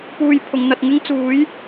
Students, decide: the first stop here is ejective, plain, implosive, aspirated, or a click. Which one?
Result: plain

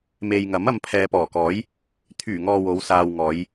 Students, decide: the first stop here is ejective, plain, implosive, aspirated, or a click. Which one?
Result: aspirated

